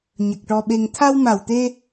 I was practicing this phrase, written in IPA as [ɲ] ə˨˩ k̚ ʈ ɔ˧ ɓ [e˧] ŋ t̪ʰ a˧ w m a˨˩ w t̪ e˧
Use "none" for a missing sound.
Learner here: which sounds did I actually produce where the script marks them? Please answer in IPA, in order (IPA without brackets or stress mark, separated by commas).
ɲ, e˧